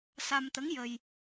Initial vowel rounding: unrounded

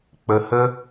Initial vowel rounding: unrounded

